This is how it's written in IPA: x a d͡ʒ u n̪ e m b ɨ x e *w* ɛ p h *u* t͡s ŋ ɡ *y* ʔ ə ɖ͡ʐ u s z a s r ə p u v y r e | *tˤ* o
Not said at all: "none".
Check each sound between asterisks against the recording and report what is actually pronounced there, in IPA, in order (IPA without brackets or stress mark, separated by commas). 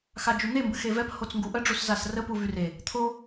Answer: v, o, u, t̪ʰ